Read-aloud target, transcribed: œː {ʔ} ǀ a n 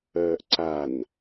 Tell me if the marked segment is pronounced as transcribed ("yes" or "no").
yes